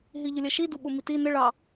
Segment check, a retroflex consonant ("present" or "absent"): present